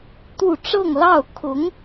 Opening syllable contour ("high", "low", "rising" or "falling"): falling